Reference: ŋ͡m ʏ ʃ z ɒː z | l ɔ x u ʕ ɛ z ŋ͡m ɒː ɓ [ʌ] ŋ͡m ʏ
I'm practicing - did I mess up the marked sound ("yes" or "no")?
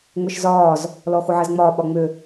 yes